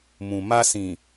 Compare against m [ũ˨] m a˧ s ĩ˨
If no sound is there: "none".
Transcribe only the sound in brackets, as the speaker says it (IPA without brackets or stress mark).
ũ˨